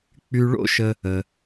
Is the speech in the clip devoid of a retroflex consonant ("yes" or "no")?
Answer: no